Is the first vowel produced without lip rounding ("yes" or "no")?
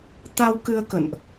yes